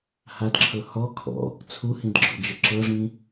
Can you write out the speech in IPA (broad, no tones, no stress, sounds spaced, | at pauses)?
h a d ǁʰ ɤ h ɔ kʰ ɔ̰ | t͡sʰ u h ĩ d ɡ͡ǁ ɔ̰ d͡ʒ ə ǁ ɤ ʐ ĩ